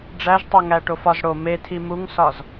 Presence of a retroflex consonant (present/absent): present